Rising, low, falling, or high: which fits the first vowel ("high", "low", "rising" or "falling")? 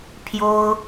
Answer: high